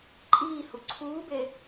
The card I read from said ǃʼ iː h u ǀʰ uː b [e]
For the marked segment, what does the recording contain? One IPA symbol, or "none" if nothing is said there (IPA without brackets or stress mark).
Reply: e